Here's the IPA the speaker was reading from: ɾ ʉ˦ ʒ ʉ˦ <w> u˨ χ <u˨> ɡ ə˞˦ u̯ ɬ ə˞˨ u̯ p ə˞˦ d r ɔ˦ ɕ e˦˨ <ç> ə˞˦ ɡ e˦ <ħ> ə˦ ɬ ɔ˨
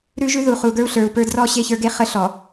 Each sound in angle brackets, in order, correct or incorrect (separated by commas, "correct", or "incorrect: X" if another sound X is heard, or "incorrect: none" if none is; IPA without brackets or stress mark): incorrect: ð, correct, correct, incorrect: χ